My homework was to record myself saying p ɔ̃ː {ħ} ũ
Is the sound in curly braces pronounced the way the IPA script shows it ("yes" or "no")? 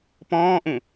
no